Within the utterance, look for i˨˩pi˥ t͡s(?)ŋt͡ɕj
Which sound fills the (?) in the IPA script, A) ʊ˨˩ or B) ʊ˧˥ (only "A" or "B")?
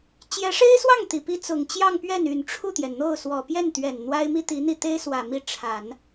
A